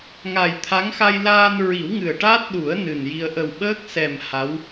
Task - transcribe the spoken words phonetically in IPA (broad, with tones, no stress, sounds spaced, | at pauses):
ŋ a˨˩ j t̪ʰ a˧˥ ŋ x a˧ j l aː˧ n ɹ i˨˩˦ w ŋ ɨ˨˩ ə̯ ʈ aː˦˥ t̚ ɗ u˨˩˦ ə̯ n ɨ˨˩ n j i˧ ə̯ ʔ ə˨˩ w ɓ əː˦˥ k̚ s ɛ˨˩ m h a˧˥ w